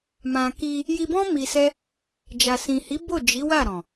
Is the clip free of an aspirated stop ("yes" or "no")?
yes